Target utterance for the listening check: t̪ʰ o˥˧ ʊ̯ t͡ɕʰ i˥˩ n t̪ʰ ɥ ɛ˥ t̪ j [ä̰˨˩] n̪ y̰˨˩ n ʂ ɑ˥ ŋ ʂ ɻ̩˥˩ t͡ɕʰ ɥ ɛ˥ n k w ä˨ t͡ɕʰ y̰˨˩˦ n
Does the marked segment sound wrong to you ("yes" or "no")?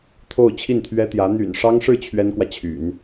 yes